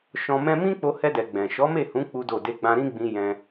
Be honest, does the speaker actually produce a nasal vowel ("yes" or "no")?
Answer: yes